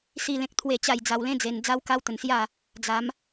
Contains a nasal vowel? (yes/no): yes